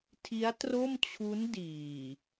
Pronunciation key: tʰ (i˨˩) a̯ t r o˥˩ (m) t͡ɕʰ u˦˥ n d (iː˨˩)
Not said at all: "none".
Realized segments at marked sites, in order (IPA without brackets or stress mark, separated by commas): i˦˥, m, iː˨˩